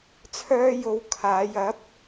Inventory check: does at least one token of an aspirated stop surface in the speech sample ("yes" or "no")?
yes